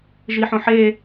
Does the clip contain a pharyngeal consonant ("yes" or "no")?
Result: yes